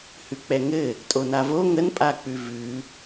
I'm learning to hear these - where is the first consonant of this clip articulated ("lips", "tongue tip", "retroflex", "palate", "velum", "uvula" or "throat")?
throat